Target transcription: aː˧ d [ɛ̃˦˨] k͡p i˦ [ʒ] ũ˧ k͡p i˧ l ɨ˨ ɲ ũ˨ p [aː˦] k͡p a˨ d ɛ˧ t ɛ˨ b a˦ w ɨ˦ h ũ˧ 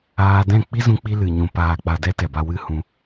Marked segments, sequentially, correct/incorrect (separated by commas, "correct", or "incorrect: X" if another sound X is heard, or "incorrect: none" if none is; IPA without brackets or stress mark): correct, incorrect: z, incorrect: aː˨